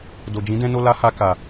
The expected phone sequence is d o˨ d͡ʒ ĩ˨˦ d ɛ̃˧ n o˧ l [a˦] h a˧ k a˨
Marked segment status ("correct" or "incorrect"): correct